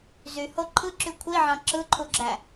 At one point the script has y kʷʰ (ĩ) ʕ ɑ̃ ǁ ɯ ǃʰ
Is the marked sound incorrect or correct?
incorrect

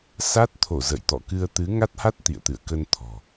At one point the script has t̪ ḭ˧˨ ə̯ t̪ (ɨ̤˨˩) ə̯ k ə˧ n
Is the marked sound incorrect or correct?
incorrect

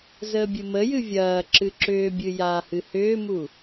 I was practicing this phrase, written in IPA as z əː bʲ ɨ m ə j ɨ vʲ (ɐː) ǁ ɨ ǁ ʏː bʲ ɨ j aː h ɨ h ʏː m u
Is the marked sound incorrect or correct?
correct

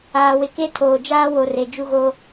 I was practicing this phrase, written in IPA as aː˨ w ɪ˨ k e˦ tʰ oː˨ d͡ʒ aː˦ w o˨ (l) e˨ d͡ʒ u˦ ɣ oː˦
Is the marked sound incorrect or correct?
incorrect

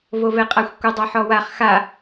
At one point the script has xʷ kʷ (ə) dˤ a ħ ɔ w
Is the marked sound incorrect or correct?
correct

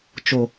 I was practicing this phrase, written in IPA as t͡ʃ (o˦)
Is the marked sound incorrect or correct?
incorrect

